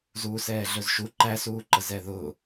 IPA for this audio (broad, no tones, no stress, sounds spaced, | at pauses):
z uː s ɛː ɮ ɵ z ʃ u ǃ æ s uː ǃ ə z ɛ ð ʊ